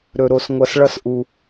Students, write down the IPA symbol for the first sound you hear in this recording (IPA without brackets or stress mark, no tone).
ɾ